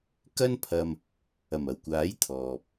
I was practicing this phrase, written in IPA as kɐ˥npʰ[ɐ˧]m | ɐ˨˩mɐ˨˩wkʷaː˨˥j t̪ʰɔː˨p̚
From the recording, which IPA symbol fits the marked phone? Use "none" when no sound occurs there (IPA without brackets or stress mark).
ɐ˧